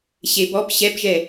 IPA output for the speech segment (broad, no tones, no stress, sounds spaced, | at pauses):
ɕ e b ɔ p ɕ ɛ p ʒ ɛ